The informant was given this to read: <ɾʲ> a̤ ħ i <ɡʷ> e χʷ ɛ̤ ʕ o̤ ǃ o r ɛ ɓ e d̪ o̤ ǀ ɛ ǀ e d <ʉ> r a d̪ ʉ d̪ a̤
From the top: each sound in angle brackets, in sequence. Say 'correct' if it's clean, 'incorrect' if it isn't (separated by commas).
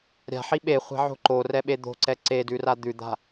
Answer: correct, incorrect, correct